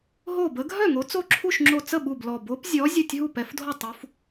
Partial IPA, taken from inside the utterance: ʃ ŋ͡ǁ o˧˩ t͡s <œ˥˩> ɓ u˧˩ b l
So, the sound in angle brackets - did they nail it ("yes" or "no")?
no